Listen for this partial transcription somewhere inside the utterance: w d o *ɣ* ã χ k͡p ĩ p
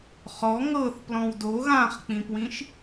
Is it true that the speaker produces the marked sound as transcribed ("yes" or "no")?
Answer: yes